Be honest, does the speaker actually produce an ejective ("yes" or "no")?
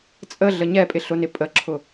yes